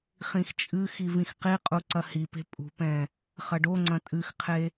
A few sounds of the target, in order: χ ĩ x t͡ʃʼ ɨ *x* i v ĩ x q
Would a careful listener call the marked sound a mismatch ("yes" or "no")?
no